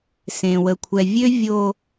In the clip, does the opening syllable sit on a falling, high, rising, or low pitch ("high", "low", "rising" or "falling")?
low